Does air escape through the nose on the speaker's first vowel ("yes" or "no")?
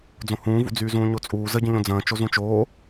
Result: yes